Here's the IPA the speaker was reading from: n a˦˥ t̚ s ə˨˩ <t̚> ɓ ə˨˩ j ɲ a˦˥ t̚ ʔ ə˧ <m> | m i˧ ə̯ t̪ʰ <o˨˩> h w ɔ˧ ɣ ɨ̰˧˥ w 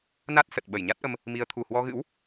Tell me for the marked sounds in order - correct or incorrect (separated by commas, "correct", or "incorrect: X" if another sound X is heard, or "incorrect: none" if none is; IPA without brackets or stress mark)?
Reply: correct, correct, incorrect: u˨˩